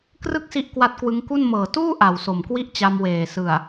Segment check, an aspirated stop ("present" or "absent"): absent